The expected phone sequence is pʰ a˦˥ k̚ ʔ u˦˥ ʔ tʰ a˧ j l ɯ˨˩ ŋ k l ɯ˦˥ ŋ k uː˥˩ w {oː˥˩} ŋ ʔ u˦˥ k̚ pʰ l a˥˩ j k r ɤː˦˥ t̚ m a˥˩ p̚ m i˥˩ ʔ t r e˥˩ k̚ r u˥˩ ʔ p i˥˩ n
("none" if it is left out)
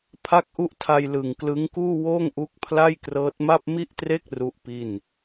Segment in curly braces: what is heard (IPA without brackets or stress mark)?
oː˥˩